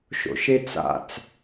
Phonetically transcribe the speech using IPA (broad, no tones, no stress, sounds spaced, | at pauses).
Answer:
ʃ o̰ ʃ e t͡s a̰ t͡s